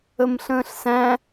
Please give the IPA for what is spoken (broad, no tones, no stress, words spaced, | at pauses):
əmɬə̃ːɬsæ̃